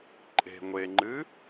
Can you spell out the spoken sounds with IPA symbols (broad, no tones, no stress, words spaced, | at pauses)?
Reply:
ǃʼe̤ ŋʷeŋ͡ǃɨ